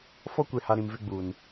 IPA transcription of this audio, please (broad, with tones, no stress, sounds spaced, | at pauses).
f ɔ˦ kʷ e˨ h a˨ ɾ ĩ˨ m v ɪ˦ ɡ͡b uː˨ n